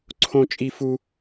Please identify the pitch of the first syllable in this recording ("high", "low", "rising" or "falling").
high